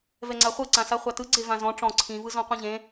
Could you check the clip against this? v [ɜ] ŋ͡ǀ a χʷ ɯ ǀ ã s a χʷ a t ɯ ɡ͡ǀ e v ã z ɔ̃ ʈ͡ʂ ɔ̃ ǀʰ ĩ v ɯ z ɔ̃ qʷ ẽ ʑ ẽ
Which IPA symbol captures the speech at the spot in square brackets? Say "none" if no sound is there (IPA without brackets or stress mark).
ɛ